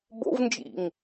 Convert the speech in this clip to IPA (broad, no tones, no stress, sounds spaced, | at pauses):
b o̰ v n d͡ʒ ḭ ŋ